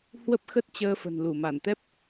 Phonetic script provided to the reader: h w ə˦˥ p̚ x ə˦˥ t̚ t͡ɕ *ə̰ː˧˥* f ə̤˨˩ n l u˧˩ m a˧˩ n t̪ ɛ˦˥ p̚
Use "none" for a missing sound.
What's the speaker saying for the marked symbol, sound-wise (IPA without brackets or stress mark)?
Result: əː˧